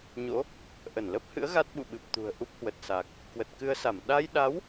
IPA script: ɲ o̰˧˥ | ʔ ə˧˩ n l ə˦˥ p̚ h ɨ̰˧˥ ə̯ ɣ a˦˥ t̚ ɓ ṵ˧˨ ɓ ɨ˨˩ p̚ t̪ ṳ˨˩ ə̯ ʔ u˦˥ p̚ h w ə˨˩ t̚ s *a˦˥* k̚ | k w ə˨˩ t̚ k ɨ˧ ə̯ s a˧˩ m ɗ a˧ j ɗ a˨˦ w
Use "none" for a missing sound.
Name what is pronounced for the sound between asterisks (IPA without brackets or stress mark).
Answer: a˨˩